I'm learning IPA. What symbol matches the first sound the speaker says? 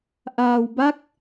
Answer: ʔ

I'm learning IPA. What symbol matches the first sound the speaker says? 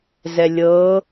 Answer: z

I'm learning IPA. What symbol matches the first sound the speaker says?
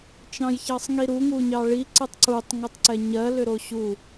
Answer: t͡ʃ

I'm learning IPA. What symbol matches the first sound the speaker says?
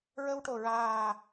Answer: ɹ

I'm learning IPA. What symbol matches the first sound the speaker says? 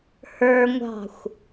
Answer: h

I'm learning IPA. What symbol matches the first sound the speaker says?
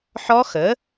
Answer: ħ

